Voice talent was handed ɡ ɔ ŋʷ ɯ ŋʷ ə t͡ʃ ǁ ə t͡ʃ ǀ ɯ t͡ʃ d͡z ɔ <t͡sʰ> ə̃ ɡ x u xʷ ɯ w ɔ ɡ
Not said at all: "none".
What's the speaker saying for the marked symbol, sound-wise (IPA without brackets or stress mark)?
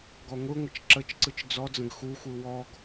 d͡z